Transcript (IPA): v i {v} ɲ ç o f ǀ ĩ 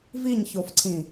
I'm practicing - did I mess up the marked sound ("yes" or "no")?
yes